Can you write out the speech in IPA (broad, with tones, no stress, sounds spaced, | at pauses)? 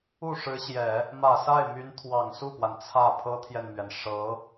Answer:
u˥˩ ʂ ɻ̩˧˥ ɕ j ɛ˨˩˦ | m ä˨˩ s a˥˩ ɪ̯ m y˧˥ n t̪ʰ w ɑ˨˩ ŋ s u˥˩ p w a˩ n t͡sʰ ä˥˩ pʰ ɤ˥ t̪ʰ j ɛ˨ n m ɥ ɛ˩ n ʂ ɤ˧˥